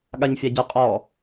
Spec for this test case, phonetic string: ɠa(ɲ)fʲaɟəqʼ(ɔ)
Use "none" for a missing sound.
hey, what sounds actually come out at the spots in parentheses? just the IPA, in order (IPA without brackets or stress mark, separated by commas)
ɲ, ɔ